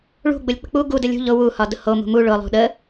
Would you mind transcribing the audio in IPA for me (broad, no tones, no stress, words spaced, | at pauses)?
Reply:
ɭṳɡ͡bʊlʲ k͡pə̤k͡pu ɡudə lʲṳ ʎʊ wuhɒ dʊho mṳmu ɭʊlˠṳ ɗə